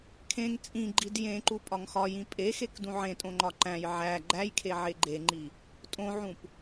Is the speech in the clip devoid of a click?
no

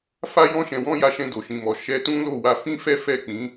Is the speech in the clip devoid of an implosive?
yes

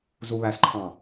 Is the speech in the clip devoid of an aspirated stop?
no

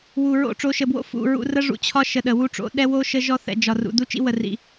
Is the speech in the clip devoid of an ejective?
yes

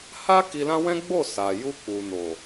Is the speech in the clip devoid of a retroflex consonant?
yes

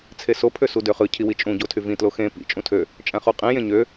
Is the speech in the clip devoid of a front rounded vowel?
no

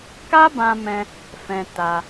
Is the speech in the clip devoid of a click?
yes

